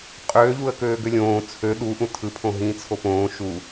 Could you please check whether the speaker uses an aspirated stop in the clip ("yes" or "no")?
yes